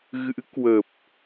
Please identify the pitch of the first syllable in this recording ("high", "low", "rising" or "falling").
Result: rising